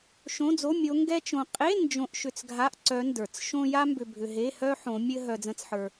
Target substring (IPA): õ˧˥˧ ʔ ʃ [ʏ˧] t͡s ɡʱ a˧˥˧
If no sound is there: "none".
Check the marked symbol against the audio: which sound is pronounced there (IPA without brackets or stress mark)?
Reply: ʏ˧